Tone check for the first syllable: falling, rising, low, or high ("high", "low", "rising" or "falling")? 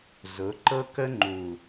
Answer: rising